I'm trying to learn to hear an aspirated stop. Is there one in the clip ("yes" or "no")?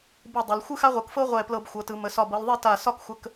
no